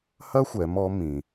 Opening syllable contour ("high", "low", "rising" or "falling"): high